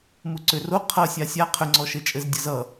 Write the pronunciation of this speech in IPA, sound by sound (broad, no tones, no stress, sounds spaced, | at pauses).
m u ǀ ʏ r o qʰ ʌ sʲ a sʲ a qʰ ʏ ŋ͡ǀ ɔ ʃ ɘ t͡ʃʼ ɘ z dʲ ʌ z ʌ